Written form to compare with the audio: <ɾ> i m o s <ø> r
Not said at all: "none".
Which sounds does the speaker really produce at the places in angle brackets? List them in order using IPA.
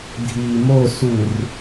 dʱ, u

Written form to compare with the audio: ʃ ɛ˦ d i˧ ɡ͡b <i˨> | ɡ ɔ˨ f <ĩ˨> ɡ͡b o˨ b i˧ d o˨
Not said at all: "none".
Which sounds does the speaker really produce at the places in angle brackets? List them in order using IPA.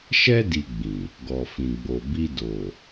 ĩ˨, ĩ˨

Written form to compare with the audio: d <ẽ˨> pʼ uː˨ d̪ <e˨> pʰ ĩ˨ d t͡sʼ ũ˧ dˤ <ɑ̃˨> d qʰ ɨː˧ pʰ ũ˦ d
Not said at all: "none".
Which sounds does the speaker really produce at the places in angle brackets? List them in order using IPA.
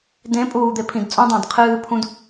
ẽ˨˦, e˨, ɑ̃˨

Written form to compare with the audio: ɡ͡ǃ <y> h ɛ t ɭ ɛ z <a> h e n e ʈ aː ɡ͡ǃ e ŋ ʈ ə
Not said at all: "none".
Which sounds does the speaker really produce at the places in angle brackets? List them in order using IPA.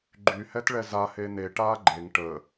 y, a

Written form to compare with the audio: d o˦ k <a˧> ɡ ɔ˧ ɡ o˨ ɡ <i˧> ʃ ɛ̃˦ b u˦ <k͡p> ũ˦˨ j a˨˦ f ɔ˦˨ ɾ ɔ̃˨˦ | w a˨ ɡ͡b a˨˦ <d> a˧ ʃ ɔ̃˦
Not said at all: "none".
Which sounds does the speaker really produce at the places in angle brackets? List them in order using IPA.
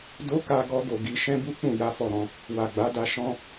a˧, i˧, k͡p, d

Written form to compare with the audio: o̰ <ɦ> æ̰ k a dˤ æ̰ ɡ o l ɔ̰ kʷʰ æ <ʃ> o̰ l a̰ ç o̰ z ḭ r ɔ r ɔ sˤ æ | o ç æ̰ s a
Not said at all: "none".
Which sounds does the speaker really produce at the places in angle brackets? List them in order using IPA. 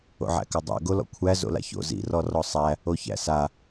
ʕ, z

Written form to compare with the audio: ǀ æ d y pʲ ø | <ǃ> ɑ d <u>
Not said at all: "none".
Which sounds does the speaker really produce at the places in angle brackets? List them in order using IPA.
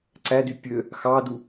x, u

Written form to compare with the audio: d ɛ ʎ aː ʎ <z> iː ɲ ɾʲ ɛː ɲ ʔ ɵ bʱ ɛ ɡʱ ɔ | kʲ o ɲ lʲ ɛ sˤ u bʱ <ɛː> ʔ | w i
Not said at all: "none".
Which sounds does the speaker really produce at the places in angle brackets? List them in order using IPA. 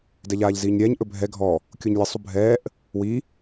z, ɛː

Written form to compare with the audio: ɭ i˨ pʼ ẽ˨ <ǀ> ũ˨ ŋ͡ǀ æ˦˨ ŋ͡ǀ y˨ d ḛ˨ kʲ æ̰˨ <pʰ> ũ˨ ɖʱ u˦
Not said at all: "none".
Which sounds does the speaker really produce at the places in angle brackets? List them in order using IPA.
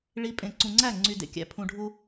ǀ, pʰ

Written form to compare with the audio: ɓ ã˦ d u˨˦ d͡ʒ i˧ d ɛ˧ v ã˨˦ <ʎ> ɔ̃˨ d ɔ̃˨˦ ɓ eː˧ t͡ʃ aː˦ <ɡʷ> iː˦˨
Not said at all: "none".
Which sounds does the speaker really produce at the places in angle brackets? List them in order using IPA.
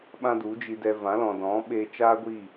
l, ɡʷ

